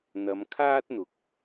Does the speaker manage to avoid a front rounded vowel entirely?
yes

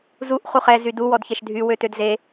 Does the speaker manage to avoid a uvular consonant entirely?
no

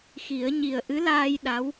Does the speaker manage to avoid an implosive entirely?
no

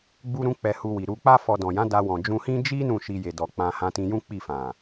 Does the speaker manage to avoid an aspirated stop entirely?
yes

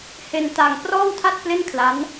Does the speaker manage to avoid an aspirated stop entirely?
no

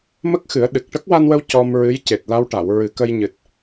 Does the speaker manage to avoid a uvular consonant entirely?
yes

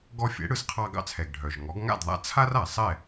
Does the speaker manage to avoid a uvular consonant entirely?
no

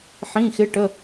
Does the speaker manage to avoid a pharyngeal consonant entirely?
no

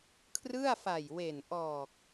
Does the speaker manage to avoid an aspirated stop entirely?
no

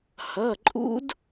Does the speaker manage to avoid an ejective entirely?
no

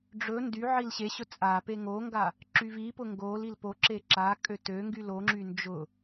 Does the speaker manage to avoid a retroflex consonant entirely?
no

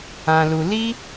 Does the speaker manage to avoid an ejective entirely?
yes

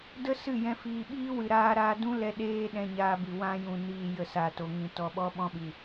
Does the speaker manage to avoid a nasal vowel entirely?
no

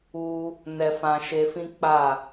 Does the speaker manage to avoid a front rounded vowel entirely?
yes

